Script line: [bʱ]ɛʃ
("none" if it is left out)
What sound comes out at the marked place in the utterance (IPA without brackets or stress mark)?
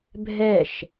bʱ